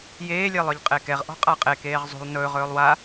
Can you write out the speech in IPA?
j eː lʲ e lˠ œ ʎ qʼ e k ɛ ʁ ʔ ɔ̤ qʼ a qʼ e k eː ʁ zˤ ṳ lˠ n ɵː ʁ ɵː lˠ w a

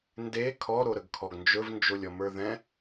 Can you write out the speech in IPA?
n d e kʰ ɔ ɾ o ɾ ə ɡ kʰ ɔ ɡ n d͡ʒ ɵ v n d͡ʒ o lʲ ɔ m ə˞ ð ɛ̃

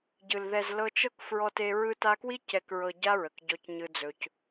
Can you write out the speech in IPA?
ɟ ɯ˨ l ð ɛ˨ z l ɤ˧ t͡ʃ ɤ˦ k f ɹ ɔ˧ t e˧ ɹ ɯ˧ t a˧ k w i˦ c ɛ˨ k ɹ ɤ˨ ɟ a˦ ɹ ə˨ k ɟ ɔ˧ c ɲ ɯ˧ d͡z ɵ˧ c

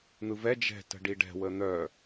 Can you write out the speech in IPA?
n̪ ɯ v ɛ d͡ʒ ɛ̤ t ə̤ ɖ i ɖ ɛ̤ w ə n̪ œ

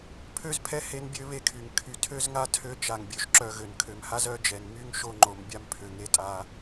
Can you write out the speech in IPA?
pʰ ø˦ z pʰ ɛ˦ h e˦ n bʲ ø˦ β e˦ kʰ y˨ ŋ kʰ y˨ tʰ ø˦ z ŋ a˦ tʰ ø˦ t͡ʃ a˨ ŋ bʲ ø˨ ʃ ǁ œ˨ ɣ ø˨ n kʰ ø˨ m h a˦ z œ˦ d͡ʒ ɛ˨ n m y˦ ŋ ʃ o˦ ŋ͡ǃ o˨ m bʲ a˦ m pʰ ø˨ ŋ e˦ tʼ a˦

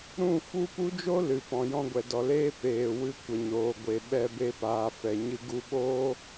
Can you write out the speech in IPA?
ɾ ũ˦˨ f u˦ p u˦ d͡ʒ o˦ l ɨ˨ p ɔ̃˨ j ɔ̃˧ ɡʷ ɛ˨ d ɔ˨ l eː˦ p eː˨ w ɨ˧ kʷ ə˨ ɲ oː˨ ɡʷ e˨ ɓ ɛ˧ b e˧ p aː˨ f ɛ˨ ɲ ɨ˧ ɡ u˧ ɓ oː˦

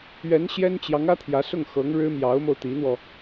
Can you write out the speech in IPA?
ɥ ɛ˧˥ n ɕ j ɛ˥ n t͡ɕ j ɑ˧˥ ŋ ä˥ t̪ʰ j ä˧˥ s ʊ˥˩ ŋ x ɤ˧˥ ŋ ɻ ɻ̩˥ m j ɑ˧˥ ʊ̯ m o˧ ʊ̯ t̪ i˧˥ n̪ w ɔ˧

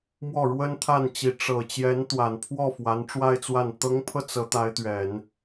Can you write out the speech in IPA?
m w ɔ˥˩ ɻ w ə˥ n t̪ʰ a˥˩ n t͡ɕ i˧˥ ʈ͡ʂ ɤ˨˩ t͡ɕ j ɛ˧˥ n t̪ w a˨˩ n pʰ w ɔ˥˩ f w a˧˥ n ʈ͡ʂ w a˥˧ ɪ̯ t͡s w a˥˩ n t̪ ɤ˧˥ ŋ pʰ ɤ˧ t͡s ɤ˧˥ t̪ a˧˥ ɪ̯ t̪ ɥ ɛ˨˩˦ n

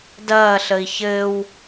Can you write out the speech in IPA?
d ɐː ɬ ə i̯ ç ɘː w

